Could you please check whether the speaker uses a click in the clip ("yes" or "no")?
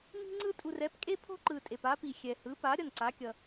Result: yes